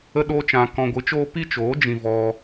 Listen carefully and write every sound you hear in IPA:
ə˦ ɗ oː˦ t͡ʃ ã˧ k ɔ̃˧ ɡʷ ɨ˨˦ t͡ʃ oː˦ p i˦ t͡ʃ oː˨˦ d͡ʒ ĩ˧ v ɔ˧

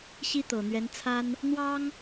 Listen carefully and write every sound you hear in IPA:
ɕ i˥ t̪ ɤ˨˩ n̪ ɥ ɛ˧˥ n t͡sʰ a˥ n | n̪ w ɑ˥ ŋ

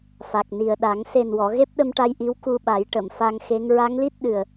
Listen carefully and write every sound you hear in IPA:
f a˨˩ k̚ n i˨˩ ə̯ ɗ a˨˩˦ ŋ s e˨˩ n w ɔ˨˩˨ ɣ e˦˥ p̚ ɗ ə˧ m ʈ a˧ j ʔ i˧˥ w k u˧ ɓ a˨˩˦ j ʈ ə˨˩˨ m f a˧ ŋ x e˧˥ ŋ ɹ a˧˥ ŋ l i˦˥ t̚ ɗ ɨ˨˩ ə̯

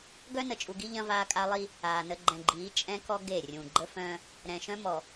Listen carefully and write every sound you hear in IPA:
ɡ œ˦ n ə˨ t͡ʃʼ u˨ ɡ i˦ ʎ ɐ̃˦ v aː˦ kʼ a˦ lˠ i˦ | aː˨ n ə˦ ɡ͡ǃ ɛ̃˨ ɡ͡ǃ iː˨˦ t͡ʃʼ ɛ̃˦ k ɔ˦ ɡ e˦˨ rʲ ũ˨ ɡ͡ǃ ə˦ f œ̃˦ | ɾ ɛ̃˨ ʃ œ̃˦ m ɔ˨

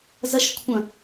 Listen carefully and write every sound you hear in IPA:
z ɐ ʃ kʷʰ ɐ̃

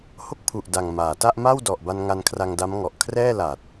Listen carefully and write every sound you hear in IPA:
h o˦˥ k̚ pʰ u˨˩ ʔ d a˨˩ ŋ m aː˩˦ t a˥˩ ʔ m a˥˩ w d ɔ˨˩ ʔ b a˧ n ŋ a˧ n kʰ r a˧ ŋ d a˦˥ m ŋ ɔ˨˩ ʔ kʰ r ɛː˥˩ l a˨˩ t̚

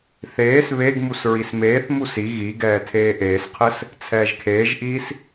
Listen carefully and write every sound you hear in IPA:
θ eː s β e ɡ m u s ɹ i s m eː θ m u s i ɣ i ɡ ɛː tʰ eː ʔ eː s qʰ ɘ s | t͡sʰ ɛː ʒ kʰ eː ʒ ʔ iː s

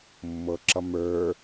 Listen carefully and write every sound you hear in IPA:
mː ɤ ǁ ʌ m ə˞

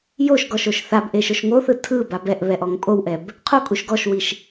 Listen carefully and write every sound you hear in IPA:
j o ʃ ɡ ɔ ʃ o ʃ θ a b ʔ e ʃ o ʃ ŋ o θ ɯ tʰ ɯ b a b ɛ ʔ β ɛ ʔ ɔ ŋ pʼ o w ʔ ɛ b | qʰ o kʼ u ʃ ɡ ɔ ʃ w i ʃ

